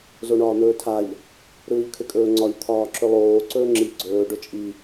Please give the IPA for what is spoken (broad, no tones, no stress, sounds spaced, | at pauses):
z o ɳ ɒː n̪ ɵː tʰ a ʎ | ɾ ɯː ʎ kʰ ʏ kʼ ɵː ŋ͡ǀ ɒ ʎ t̪ʰ ɒː ǁ ʏ lˠ oː ǀ ɵː ŋ͡ǁ i ɡ͡ǀ ɵː ɖ ɵ t͡ʃʼ i